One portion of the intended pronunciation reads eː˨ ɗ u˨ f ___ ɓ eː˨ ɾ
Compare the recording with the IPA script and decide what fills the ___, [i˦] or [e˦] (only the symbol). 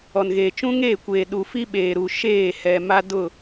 i˦